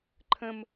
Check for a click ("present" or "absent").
present